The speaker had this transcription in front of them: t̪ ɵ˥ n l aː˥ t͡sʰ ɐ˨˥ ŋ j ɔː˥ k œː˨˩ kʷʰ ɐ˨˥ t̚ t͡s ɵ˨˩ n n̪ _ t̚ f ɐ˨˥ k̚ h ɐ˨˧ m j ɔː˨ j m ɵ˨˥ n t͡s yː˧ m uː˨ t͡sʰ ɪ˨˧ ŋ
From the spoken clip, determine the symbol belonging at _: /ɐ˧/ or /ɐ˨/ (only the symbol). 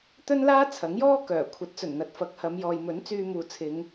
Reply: ɐ˨